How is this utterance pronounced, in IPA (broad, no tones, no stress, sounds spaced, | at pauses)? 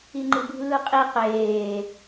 i ŋ͡ǃ ɯ bʱ ɯː qʼ i q eː